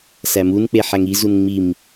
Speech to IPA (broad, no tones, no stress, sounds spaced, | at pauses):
s æ m u n k͡p e ħ æ ŋ i z u n ŋ͡m i m